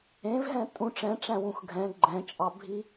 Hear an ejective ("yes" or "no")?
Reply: yes